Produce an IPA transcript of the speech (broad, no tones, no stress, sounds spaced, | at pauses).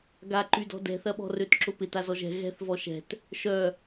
ɡ a ǃ y d ɔ̤ d ɛ̤ θ ɐ ɓ ɔ̤ r ø t ǁ ʊ p ɪ t a z ɔ ʒ ɛ̤ ɣ ɛ̤ θ v ɔ ʃ ɛ̤ t | ʃ œ